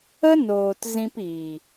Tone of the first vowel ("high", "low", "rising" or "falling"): high